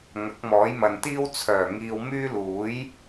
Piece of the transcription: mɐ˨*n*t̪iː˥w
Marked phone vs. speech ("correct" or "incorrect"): correct